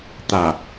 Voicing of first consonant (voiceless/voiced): voiceless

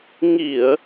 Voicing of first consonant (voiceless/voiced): voiced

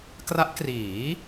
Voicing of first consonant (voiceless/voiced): voiceless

